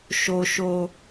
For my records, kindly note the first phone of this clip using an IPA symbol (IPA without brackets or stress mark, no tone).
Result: ʃ